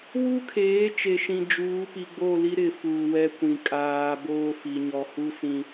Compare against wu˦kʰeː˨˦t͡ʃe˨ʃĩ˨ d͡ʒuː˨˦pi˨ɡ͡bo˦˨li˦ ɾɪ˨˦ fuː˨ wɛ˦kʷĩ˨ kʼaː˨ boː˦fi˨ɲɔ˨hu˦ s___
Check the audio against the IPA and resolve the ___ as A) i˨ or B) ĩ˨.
B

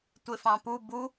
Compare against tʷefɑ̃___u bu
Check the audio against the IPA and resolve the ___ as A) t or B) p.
B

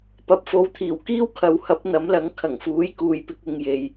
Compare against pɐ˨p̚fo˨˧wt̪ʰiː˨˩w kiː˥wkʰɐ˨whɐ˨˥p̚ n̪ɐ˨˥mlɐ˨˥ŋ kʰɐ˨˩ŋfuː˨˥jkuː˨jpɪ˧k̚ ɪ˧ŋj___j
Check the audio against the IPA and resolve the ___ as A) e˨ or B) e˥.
A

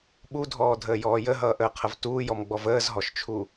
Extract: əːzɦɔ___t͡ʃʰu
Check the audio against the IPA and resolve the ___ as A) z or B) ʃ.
B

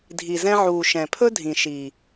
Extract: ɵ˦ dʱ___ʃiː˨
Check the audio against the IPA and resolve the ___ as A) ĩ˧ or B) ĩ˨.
B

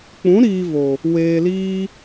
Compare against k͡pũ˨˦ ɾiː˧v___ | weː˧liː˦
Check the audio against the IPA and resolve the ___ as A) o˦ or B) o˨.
B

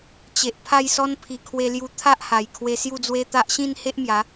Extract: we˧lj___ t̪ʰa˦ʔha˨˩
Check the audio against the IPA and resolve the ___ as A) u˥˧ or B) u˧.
B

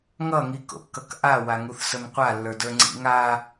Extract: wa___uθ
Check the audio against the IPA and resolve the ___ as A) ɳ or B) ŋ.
B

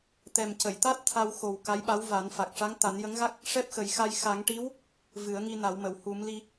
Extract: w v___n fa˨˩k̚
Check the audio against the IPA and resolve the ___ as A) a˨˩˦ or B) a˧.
A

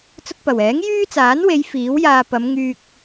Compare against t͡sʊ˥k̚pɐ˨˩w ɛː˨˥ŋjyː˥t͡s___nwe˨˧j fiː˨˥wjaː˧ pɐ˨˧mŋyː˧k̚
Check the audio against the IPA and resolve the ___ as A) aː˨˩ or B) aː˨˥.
B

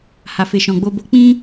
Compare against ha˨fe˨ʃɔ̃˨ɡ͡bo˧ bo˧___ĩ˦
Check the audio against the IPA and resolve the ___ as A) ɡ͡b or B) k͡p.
B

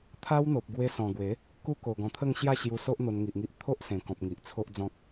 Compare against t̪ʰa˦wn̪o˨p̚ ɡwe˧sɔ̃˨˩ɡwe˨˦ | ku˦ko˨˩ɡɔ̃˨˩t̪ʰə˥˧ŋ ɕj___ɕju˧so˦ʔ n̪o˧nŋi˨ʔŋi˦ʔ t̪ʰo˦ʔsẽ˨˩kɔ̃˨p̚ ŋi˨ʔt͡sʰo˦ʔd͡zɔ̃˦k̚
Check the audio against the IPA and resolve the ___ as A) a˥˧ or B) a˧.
A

